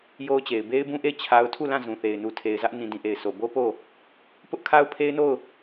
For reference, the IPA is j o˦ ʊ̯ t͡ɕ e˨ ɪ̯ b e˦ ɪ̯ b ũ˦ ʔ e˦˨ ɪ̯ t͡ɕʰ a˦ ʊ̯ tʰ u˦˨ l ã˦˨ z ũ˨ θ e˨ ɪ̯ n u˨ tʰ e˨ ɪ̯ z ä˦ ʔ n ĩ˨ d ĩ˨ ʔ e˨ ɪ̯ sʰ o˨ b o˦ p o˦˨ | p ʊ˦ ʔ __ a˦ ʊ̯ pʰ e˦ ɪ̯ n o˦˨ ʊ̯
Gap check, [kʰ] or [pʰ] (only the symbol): kʰ